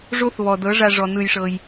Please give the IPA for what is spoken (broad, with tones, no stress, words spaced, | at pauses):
ʐo˦θβɔ˨ dɤ˨˦ʐa˧ʐɔ˨ nɯ˧jʂɤ˧j